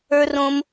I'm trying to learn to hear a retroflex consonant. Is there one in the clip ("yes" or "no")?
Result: no